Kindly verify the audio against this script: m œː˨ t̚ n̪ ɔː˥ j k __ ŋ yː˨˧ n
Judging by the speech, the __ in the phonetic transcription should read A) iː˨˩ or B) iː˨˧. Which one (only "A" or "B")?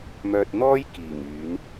A